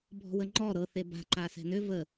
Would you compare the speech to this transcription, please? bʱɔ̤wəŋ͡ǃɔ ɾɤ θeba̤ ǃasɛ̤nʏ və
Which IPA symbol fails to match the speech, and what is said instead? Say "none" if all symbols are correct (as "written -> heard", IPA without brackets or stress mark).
none